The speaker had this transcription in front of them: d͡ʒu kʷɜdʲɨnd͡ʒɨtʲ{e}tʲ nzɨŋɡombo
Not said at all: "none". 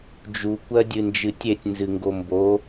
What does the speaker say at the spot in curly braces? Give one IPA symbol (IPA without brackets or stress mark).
e